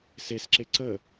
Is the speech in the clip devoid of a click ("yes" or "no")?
no